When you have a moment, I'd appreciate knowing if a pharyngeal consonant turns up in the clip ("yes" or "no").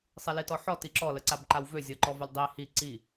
yes